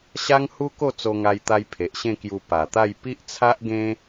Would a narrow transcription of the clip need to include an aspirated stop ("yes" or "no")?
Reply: yes